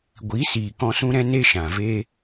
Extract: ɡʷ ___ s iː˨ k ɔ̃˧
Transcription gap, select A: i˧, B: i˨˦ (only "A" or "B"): B